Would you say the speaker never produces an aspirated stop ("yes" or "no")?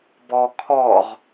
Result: no